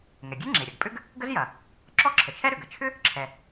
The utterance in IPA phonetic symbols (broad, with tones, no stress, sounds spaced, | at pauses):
ŋ ɛ˩ ɡʲ e˥ ŋ͡ǁ e˩ ɾʲ ɐ˩ ɡ pʼ ʏ˥ ɡ | ɡ ə˥ z j ɐ˩ | ǁ ɔ˥ ǁʰ ə˩ t͡ʃʰ ɛ˥ ɾ ʏ˩ ɡ ə˩ t͡ʃʰ ʏ˥ | ǁʰ ɛ˩